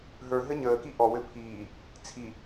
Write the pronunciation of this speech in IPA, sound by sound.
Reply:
ɦ ə˞ ɦ ɘ ɲ əː k i ʔ ɔ w ɘ pʰ iː | t͡sʰ i

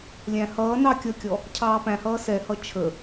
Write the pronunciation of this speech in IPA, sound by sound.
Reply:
lʲ æ̃ h ʌː n ɑ kʲ ʌ kʲ ɔ | cʰ ɑː p æ̃ h ʌː s ɛ h ʌ t͡ʃʰ ə

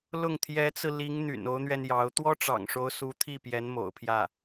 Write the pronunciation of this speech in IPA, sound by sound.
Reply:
l ʊ˥˩ ŋ t̪ʰ j ɛ˧˥ t͡s ɹ̩˧ l i˧˥ ŋ n̪ y̰˨˩ n o˧˥ ʊ̯ n̪ ɥ ɛ˧ n j ɑ˧˥ ʊ̯ t̪ w ɔ˥ ʈ͡ʂ ɑ̰˨˩ ŋ ʂ o˧˥ ʊ̯ s u˧˥ t̪ʰ i˥˩ p j ɛ˧˥ n m o̰˨˩ ʊ̯ pʰ j ä˥˩

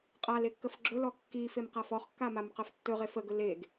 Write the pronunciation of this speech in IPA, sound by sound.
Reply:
qʼ a l e kː ə f ɡ͡ǁ ɵ l ɔ kː i f e m q a f ɔ χ kː a m a m q ə f tː ɵ ʁ e f ə ɡ ɵ l e ɡ

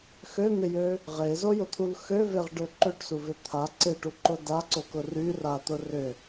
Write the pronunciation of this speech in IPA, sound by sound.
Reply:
x ø n̪ ɪ j ø | ʁ e z o j ʊ t̪ʰ u l x ø v e ʁ ɖ ø ǃ ø ʈ s u v ɪ t̪ʰ a ǀ ɪ ʈ u ǃ ʊ d a ǀ o k ʊ r y r a t̪ ʊ r ʏ

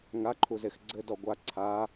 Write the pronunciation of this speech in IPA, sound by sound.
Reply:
ŋ a ǃʰ u z e x ɡ͡ǀ ɘ d ɔ ɡʷ a ǀʰ a

